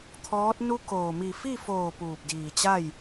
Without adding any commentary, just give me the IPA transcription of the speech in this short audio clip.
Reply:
t̪ʰ ɔː˧˥ t̚ n u˧ k oː˩ m i˧˩ f i˥˨ f oː˧˩ p uː˧˩ p̚ d iː˧˩ t͡ɕ a˥˨ j

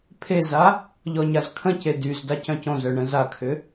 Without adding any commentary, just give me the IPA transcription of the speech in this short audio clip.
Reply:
pʰ e z a | ʎ ɔ ɲ a z kʰ ə̃ c e d y z d a c œ̃ c õ z œ ɳ ə̃ z a kʰ ʏ

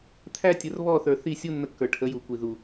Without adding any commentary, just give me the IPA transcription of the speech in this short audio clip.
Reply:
t̪ʰ æ˦ tʲ ə˨˦ r β ɔ˦˨ θ ə˞˨ θ i˦˨ sʲ u˦ nː ə˧ kː ə˞˨ ʈʰ ə˨˦ j u˨ kʷ i˨ ð u˨

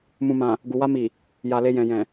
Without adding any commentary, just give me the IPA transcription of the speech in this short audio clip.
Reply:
m ũ˨ m ã˨ | ɡ u˨ w a˧ m i˨ | j a˨ l e˧ j ɛ̃˨ j ɛ̃˨

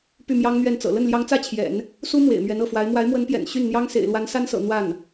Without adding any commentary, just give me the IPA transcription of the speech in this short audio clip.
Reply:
p y˥˩ m j ɑ˥ ŋ n̪ ɥ ɛ˥˩ n t͡s ɤ̰˨˩ l ə˥˩ n l j ɑ˧˥ ŋ t͡s ä˥˩ t͡ɕʰ j ɛ̰˨˩˦ n | s u˥ m w ḛ˨˩ ɪ̯ m ɥ ɛ˧˥ n ɤ˥˩ f w a˧˥ ɪ̯ m w a˧˥ ɪ̯ m w ə˧˥ n p j ɛ̰˨˩ n ɕ y˥˩ n n̪ j ɑ˥ ŋ s ḛ˨˩ ɪ̯ l w a˧˥ n s a˥ n s ɤ̰˨˩ n̪ w a˥˩ n

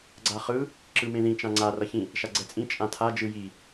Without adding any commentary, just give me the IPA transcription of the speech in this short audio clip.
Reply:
ɡ͡ǀ a χ ɯ | ǁ ɯ m ẽ ð ĩ t͡ʃ ã ŋ͡ǀ a r ʌ ç ĩ | ʃ a ɡ͡ǀ ɛ t͡sʼ ĩ t͡ʃʼ ã tʰ a d͡ʒ ɯ j i

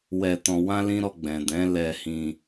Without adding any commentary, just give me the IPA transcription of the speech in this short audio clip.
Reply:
w ɛ˧ t ɔ̃˧ w ã˦ l ĩ˦ ɾ ɔ˧ ɡ͡b ɛ̃˨ d ɛ̃˨˦ l ɛ˧ h ĩ˧

